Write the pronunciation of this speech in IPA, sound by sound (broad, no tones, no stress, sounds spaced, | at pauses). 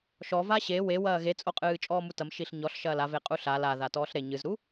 ʃ ɔ v a ɕ e w e w ɐː ɣ e t͡sʼ o qʼ ɨː t͡ʃʼ ɔː m u t ɐ m ʃ i ɬ ɲ ɔ ɬ ʃ ɐː l a v e qʼ u ɬ a l a ð a t ɔː ɬ ɾ e ɲ ɨ z ɾ u